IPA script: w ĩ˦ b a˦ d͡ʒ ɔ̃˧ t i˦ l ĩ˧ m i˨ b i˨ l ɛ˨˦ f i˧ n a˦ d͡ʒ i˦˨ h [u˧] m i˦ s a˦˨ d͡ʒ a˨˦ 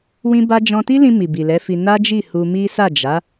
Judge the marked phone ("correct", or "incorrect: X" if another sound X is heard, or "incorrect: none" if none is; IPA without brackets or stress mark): correct